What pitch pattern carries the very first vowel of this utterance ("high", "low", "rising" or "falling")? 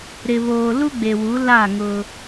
low